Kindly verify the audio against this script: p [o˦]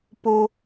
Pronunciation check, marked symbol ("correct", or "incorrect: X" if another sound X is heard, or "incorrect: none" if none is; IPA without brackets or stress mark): correct